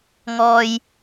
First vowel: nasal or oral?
oral